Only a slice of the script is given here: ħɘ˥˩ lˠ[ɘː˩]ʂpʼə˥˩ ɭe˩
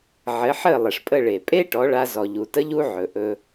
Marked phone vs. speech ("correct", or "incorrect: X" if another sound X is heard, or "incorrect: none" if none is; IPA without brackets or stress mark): incorrect: ɘ˩